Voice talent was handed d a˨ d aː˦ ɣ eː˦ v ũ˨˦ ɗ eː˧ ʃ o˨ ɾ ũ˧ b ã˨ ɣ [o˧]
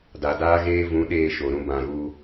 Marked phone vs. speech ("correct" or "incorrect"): incorrect